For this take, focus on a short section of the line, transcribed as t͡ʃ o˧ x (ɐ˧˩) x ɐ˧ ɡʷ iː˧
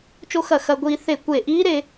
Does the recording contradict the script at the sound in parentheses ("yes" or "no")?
no